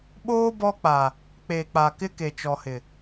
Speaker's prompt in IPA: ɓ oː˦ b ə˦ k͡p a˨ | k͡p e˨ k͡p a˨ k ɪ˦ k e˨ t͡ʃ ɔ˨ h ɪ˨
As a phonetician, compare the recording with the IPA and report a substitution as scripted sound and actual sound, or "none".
ə˦ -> ɔ˦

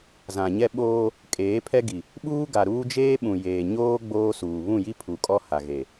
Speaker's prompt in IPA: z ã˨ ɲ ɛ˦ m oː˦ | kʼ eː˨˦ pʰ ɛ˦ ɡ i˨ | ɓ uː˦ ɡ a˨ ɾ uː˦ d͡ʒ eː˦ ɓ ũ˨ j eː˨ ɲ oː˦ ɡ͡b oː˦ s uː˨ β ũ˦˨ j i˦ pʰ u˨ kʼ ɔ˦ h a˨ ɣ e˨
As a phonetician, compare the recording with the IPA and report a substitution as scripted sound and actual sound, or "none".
m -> ɓ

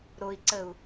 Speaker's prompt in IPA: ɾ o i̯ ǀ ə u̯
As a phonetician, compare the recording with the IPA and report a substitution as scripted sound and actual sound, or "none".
none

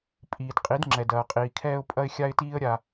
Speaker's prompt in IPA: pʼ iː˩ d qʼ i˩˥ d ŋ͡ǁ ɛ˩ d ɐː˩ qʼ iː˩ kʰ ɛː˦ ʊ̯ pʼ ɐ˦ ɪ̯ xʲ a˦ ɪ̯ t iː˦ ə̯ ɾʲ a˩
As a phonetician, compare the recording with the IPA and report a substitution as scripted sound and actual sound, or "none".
none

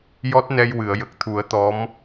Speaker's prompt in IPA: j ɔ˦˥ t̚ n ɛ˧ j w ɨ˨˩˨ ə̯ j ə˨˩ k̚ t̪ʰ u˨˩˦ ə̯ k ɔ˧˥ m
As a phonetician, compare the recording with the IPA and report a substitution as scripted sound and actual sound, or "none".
k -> t̪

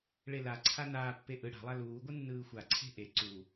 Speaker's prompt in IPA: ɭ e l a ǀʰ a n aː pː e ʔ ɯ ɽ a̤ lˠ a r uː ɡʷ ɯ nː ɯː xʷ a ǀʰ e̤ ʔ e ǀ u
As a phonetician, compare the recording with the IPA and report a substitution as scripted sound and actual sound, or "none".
r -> l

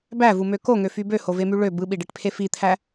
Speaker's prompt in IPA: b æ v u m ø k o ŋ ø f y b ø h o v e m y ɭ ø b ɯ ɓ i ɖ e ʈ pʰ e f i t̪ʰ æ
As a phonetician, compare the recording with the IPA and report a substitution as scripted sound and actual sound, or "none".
none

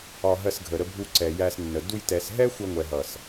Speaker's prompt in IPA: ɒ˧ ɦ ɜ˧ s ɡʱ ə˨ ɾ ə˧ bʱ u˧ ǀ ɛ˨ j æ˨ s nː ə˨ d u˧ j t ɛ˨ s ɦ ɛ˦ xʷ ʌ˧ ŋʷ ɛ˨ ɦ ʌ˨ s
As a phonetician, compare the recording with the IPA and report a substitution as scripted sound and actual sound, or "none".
æ˨ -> æ˧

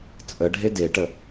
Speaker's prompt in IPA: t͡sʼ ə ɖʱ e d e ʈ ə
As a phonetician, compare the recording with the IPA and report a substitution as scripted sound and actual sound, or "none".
none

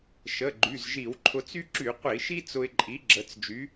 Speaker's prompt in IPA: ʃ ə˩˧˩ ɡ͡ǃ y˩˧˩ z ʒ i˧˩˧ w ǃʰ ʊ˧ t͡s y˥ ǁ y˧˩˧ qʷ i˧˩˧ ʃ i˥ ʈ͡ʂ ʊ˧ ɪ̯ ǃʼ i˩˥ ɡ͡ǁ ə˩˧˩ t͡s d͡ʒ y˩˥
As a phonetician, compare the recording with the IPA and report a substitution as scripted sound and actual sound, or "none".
ʈ͡ʂ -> t͡s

